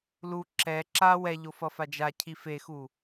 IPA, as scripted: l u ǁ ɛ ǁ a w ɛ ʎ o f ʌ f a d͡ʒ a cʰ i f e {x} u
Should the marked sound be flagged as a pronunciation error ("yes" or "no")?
no